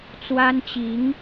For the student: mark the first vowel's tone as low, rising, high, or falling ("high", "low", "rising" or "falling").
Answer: high